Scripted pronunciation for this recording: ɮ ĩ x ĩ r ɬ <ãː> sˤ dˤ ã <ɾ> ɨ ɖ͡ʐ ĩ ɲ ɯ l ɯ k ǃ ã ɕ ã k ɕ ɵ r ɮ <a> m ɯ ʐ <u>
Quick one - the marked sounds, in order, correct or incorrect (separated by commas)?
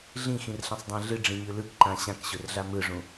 incorrect, incorrect, correct, incorrect